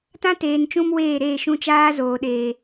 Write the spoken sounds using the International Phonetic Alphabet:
tã˦teː˨n t͡ʃũ˦m weː˦˨ɾeː˦˨ ʃũ˧t͡ʃaː˦zoː˨ɗeː˨

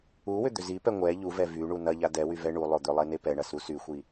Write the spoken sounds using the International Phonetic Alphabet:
uwʏ d̪ʏzipɛ ŋʷɛ ʎuvɛ vy ɳunɐʎa dɛwy vɛɳulˠo d̪ʏlˠe nepɛɳɐ susyxʷi

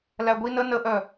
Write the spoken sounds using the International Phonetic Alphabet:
læɡʷi nə nəʔœ

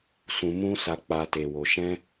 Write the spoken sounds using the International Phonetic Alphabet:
sũ˧mũ˦ sa˧k͡pa˧ te˨wo˨ʃɛ̃˧

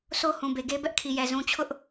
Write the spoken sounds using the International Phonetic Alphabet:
so˦hũ˨be˨ɡe˦ bɛ˦ʔkʰi˨jɛ˨ zũ˨t͡ɕʰʊ˦ʔ

